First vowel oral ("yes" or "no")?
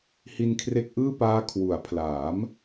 yes